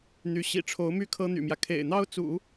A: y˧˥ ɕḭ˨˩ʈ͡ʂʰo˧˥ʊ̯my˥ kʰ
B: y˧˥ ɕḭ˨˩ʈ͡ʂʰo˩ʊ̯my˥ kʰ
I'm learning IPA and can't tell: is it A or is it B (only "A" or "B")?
A